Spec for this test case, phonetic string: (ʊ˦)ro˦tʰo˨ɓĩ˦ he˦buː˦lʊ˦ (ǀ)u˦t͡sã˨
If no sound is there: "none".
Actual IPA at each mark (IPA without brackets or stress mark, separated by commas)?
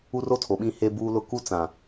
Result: u˦, k